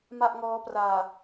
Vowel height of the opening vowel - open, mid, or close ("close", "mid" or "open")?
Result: open